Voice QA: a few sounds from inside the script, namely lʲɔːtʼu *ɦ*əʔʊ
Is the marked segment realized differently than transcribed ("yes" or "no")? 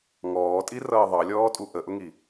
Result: yes